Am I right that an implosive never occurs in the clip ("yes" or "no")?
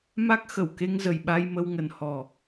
no